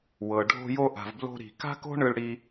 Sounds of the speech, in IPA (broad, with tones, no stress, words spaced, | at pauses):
wɤ˩ɖʱo̤˧jo˧ ʔa̤˩vblo̤˧ɾi̤˩ ka̤˥ko̤˥ɳɯ˧ɭ ɽi˧